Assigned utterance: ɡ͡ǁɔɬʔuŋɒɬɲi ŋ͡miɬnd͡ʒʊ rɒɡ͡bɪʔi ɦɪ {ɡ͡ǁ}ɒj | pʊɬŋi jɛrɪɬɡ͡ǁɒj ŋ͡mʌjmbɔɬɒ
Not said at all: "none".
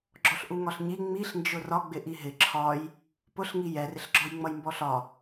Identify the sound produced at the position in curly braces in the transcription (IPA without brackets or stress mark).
ǁʰ